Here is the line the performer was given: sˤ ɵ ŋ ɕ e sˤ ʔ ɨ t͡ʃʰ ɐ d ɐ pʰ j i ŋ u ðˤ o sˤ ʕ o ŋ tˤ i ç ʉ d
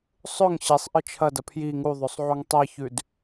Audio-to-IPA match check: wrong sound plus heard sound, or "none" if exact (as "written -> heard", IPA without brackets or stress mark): none